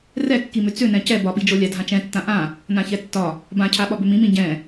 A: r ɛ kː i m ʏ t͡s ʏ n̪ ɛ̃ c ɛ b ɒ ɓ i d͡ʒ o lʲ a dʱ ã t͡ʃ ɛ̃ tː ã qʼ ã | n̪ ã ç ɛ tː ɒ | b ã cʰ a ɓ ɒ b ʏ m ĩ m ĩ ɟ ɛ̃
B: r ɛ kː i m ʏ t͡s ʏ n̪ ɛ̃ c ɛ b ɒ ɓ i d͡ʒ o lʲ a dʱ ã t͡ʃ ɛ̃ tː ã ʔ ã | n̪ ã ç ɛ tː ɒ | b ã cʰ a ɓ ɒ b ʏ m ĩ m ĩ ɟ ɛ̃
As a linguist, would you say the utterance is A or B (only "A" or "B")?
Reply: B